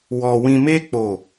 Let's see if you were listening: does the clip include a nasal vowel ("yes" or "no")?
yes